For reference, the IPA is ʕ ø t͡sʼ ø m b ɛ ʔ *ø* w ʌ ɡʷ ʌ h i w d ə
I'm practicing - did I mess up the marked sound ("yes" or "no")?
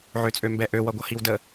no